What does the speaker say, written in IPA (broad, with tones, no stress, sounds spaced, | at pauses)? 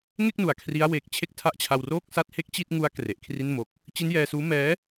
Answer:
ŋ e˥˩ k̚ n u˩˦ a̯ kʰ r i˦˥ a̯ w eː˨˩ k̚ t͡ɕʰ e˥˩ k̚ tʰ a˥˩ ʔ t͡ɕʰ a˧ w r o˥˩ k̚ s a˥˩ t̚ h e˥˩ k̚ t͡ɕ i˥˩ t̚ ŋ u˦˥ a̯ k r e˨˩ ʔ kʰ r i˥˩ n m o˦˥ k̚ | t͡ɕ i˦˥ n j ɛː˧ s uː˦˥ m ɛː˦˥